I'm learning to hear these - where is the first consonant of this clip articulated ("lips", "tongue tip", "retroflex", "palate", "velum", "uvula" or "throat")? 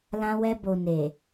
tongue tip